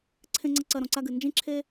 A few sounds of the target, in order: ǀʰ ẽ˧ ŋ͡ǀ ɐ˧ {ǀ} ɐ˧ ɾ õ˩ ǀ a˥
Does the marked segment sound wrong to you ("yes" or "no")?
no